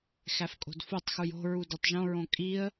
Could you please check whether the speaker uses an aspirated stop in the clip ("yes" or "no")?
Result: no